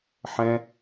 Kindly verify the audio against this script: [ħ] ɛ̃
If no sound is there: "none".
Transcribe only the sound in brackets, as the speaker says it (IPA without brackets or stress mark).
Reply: ħ